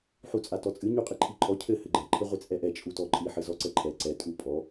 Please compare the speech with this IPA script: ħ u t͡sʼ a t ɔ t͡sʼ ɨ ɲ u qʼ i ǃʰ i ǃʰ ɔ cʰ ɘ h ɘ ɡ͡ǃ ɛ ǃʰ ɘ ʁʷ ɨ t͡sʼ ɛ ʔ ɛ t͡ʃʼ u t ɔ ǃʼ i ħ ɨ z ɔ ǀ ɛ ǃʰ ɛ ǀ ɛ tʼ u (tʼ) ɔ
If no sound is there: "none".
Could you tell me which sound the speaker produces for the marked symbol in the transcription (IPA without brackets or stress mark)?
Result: pʼ